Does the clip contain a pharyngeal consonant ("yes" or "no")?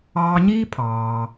no